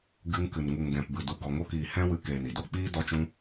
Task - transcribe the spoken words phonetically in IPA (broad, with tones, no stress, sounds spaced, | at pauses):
ɡ ɨ˧ ŋ k ɨ˨ n ŋ u˨ ŋ ɡ ɛ̃˨ p b ɨ˨ d u˨ ɡ ɔ˨ ŋ o˧ k iː˨ h ɛ̃˦ w ɨ˧ k eː˨ n i˨ d o˦ k͡p iː˦ d ɔ˧ t͡ʃ ũ˧